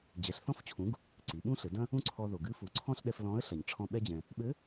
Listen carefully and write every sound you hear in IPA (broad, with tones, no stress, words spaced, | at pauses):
d͡ʑɛ˩˧ɬθɔ̃˧˥ft͡ɕʰũ˩˧ɡ | ǀi˩˧ɓũ˥ɬɘ˩˧dɐ̃˥ | ũ˥ǀʰɔ˧ ðo˩ɡɨ˧˥ fu˩˧ǀʰɔ̃˥ɬɗɛ˧f lɔ̃˧˥ə̯ɬɐ˩ɲ ʈ͡ʂʰɔ̃˧ ɓɛ˧d͡ʑɛ̃˩ | ɓɘ˧˥